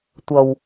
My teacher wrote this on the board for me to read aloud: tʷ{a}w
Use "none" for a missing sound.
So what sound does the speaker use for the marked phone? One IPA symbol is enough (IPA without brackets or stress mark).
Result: ʌ